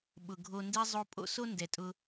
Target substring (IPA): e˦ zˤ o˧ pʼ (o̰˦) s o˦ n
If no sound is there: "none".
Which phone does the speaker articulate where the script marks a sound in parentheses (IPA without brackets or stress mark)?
o̰˦